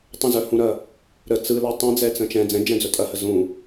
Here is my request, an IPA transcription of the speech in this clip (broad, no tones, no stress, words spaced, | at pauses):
tˤə̃zœhũɾɐ | ɾə t͡sɯlɛ tˤɛ̃d͡zɛt͡sə̃ t͡ʃɛ̃ d͡zɛ̃d͡ʒɛ̃d͡zœ tʼɐhə zũ